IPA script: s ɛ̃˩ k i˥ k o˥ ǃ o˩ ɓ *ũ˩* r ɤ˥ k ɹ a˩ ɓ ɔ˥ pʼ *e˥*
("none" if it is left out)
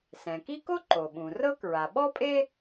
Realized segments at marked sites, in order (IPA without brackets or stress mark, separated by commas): ũ˩, e˥